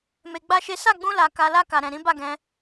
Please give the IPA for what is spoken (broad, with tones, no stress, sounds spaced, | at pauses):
m e˧ ɡ͡b a˦ ʃ e˦ s a˦˨ ɡ͡b ũ˧ l a˨ k a˨ l a˧ k a˨ ɾ ɛ̃˨ ɾ ĩ˨˦ b a˦˨ ɡ ɛ̃˧